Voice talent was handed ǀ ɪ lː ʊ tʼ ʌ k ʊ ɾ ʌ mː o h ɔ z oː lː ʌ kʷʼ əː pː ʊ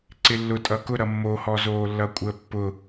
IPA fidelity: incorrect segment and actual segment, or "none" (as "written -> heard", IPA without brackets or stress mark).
none